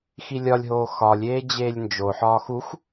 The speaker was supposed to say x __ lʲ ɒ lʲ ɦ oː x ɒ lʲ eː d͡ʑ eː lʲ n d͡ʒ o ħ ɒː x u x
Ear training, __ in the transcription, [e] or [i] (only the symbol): i